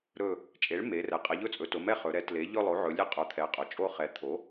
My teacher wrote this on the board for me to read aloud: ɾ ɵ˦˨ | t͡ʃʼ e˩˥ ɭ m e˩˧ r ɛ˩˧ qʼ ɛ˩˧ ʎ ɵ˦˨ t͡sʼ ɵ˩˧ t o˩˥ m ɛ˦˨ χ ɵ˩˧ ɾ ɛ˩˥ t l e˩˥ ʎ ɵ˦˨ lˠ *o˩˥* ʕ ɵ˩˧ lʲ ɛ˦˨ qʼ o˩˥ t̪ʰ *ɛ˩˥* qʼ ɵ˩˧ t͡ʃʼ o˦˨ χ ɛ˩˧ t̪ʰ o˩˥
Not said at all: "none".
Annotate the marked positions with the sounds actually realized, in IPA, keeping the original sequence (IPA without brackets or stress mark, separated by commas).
o˩˥, ɛ˩˥